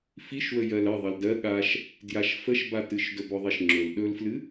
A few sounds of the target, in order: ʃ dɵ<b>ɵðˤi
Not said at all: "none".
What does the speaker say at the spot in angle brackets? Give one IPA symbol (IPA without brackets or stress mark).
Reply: b